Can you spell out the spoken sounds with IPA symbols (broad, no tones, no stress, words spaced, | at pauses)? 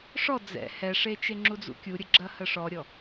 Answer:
ʂɔ d͡zɛ̰ hɛʂet͡ʃe ŋ͡ǁud͡zṵkʲuɾʲə ɡ͡ǁɐhəʂɔɾʲɔ